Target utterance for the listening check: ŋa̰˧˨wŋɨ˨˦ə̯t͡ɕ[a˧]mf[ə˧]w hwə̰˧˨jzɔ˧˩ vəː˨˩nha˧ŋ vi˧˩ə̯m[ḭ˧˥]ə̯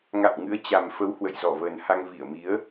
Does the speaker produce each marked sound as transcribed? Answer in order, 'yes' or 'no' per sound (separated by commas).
no, no, no